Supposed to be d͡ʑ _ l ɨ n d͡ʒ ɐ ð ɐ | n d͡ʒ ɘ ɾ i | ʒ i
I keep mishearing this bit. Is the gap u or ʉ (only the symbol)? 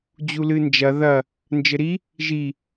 u